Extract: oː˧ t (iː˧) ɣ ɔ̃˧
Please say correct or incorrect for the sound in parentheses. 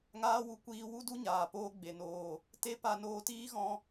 incorrect